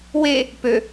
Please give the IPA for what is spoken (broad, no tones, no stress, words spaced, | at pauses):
we | pø